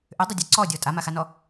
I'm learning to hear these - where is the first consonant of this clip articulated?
throat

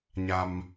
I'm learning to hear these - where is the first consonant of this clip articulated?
palate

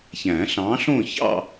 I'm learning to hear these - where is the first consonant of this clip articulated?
palate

